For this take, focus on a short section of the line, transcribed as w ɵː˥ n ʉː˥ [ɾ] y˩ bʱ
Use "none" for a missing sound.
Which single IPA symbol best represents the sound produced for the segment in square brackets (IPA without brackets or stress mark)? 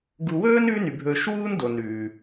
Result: n